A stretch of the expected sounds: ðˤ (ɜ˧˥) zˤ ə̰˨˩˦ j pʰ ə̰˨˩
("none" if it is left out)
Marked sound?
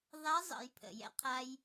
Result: æ˧˥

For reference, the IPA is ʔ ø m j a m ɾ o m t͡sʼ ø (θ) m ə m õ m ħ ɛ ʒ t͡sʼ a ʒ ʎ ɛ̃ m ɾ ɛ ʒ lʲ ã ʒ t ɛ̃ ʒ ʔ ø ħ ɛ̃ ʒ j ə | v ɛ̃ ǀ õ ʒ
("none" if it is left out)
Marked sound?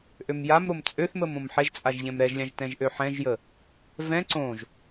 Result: θ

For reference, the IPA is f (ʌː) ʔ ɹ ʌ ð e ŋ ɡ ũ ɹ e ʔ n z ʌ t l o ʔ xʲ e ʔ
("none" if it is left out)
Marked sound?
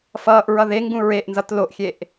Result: ʌː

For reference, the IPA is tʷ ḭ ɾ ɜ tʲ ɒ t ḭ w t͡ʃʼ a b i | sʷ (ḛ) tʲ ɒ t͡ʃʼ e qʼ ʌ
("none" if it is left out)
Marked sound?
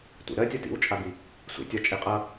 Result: ḛ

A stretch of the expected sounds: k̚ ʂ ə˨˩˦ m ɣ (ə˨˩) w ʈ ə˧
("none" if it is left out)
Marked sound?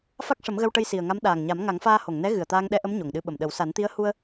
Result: ə˧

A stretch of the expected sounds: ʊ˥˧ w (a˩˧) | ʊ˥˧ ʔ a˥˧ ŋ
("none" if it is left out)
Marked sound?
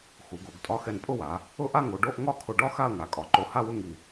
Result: a˩˧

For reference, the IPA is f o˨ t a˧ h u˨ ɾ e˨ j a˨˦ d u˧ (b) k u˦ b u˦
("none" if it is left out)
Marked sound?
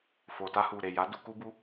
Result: none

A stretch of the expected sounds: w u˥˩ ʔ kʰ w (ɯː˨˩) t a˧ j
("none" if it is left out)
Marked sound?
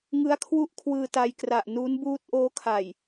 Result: ɯː˧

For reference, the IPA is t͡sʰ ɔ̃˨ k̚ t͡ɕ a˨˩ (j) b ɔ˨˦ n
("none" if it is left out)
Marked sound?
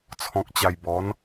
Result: j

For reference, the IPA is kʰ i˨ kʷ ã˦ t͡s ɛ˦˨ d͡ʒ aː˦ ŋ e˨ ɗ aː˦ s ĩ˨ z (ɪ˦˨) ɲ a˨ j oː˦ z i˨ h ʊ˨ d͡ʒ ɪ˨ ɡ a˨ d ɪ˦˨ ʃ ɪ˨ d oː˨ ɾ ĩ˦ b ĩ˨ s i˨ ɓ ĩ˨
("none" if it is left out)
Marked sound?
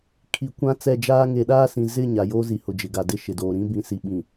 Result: ɪ˦˨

